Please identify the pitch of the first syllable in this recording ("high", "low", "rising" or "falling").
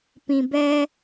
low